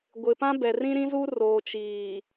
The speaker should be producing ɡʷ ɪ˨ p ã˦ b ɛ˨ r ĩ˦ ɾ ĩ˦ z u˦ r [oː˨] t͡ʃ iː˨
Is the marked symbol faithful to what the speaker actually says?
yes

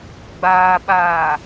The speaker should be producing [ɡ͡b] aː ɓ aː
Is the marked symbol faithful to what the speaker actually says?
yes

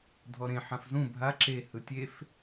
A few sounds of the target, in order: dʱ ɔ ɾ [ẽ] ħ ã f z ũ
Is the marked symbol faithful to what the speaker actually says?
yes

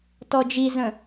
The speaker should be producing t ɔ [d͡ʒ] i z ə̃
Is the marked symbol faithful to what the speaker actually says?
yes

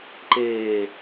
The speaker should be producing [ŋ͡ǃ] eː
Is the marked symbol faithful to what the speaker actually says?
no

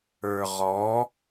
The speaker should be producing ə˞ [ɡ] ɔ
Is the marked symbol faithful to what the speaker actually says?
no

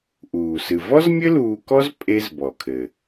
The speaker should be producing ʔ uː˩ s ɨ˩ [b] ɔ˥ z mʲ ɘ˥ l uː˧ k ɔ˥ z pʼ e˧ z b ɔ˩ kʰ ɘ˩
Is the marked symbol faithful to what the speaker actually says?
no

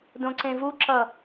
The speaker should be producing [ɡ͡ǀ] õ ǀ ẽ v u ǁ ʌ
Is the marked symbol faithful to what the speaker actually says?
no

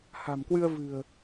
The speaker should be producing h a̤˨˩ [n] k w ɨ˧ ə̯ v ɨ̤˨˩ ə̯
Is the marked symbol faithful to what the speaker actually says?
no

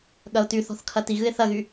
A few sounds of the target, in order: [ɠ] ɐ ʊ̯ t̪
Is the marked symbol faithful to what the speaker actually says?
yes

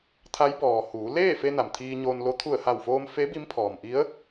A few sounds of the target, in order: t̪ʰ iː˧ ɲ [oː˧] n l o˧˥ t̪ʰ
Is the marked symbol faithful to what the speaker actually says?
yes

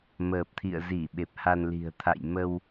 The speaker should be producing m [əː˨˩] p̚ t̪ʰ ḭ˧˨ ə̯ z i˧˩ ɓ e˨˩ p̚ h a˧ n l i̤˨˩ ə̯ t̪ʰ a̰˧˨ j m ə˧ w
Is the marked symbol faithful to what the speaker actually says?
yes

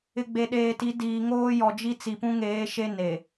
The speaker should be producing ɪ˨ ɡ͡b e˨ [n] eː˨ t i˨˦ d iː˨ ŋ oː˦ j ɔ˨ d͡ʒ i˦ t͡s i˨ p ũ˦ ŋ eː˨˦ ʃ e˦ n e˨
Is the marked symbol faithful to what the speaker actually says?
no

